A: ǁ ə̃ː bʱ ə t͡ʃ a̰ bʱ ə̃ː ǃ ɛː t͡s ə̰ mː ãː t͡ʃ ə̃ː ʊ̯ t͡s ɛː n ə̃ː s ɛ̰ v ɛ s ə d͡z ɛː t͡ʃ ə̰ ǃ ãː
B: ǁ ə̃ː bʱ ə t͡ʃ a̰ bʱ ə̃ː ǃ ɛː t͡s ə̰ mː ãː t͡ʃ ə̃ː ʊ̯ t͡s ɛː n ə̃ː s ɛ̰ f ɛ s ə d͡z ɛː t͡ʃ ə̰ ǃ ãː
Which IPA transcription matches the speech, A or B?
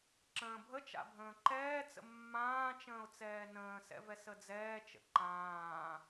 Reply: A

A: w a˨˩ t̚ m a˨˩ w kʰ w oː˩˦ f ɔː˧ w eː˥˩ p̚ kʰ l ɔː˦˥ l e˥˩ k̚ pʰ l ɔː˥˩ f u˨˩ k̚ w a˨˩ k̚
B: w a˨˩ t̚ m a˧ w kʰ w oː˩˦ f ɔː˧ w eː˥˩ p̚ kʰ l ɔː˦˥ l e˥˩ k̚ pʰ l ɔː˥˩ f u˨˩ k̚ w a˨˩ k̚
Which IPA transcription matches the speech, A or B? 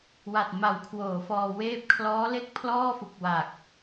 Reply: A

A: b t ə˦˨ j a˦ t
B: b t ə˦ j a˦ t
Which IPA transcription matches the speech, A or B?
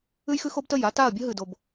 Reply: A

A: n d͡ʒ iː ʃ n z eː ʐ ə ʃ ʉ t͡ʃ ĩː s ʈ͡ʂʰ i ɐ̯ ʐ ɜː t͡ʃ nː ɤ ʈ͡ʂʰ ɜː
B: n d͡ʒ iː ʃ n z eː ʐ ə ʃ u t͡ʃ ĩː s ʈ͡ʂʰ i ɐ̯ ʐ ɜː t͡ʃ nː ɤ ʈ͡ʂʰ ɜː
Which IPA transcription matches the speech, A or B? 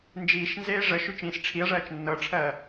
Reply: A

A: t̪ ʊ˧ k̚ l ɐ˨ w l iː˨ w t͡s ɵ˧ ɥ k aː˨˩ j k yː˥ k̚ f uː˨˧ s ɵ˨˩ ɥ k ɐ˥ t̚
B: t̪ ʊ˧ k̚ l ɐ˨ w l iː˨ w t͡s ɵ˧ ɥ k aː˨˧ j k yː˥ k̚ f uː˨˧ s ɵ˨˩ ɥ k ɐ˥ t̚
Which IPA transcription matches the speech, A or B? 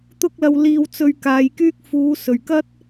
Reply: B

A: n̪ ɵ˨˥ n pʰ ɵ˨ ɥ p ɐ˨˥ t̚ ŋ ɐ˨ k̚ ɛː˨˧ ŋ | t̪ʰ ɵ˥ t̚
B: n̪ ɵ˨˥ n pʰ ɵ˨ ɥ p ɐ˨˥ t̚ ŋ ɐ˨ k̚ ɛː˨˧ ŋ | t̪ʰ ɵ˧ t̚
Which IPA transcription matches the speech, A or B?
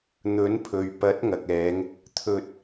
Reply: B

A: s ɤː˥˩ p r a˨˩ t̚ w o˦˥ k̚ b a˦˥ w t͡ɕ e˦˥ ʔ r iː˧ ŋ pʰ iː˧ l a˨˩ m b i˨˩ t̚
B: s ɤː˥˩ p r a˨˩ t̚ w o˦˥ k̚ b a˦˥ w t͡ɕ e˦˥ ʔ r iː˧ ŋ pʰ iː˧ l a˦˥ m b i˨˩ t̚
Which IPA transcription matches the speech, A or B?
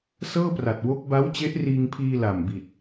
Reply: A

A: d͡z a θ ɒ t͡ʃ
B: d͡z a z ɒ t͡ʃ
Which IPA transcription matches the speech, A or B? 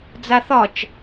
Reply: A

